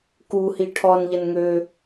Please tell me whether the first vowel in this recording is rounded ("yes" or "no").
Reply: yes